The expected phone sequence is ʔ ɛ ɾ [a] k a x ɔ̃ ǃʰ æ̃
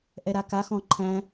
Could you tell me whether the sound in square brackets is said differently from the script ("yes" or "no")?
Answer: no